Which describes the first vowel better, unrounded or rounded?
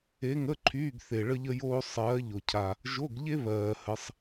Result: unrounded